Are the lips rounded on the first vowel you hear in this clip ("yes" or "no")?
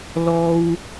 yes